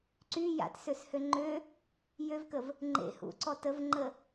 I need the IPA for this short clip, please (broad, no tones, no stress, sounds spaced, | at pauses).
ǀ y j a̰ t s ø s h ø ŋ͡ǃ ø | j ø v k ə v | ŋ͡ǃ ḛ h ṵ ǀ ɔ t ə v ŋ͡ǃ ə